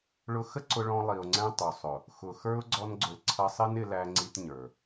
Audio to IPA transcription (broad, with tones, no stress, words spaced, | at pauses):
ɭʊ˧xə˦ ǀʊ˧ɭɔ̃˧ lˠi˨ʊ̯ŋ͡ǀɛ̃˧ tˤu˨ sˤʊ˨ | xʊ˨xə˞˦ʊ̯ ɡ͡ǀɔ˧nɡ͡ǀʊ˨l ǀʰʌ˧sˤɪ˦n ɪ˧læ˧ŋ͡ǀi˧t ɲə˞˨